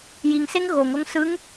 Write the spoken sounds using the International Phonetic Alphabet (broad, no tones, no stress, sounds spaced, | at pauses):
j i ŋ s e ŋ ɣ o ŋ o ŋ s ɯ ŋ